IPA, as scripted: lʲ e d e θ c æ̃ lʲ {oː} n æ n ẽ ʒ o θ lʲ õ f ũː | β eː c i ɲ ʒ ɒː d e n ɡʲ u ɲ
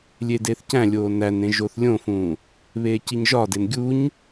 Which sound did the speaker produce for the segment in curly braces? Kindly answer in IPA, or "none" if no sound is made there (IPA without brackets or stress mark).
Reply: oː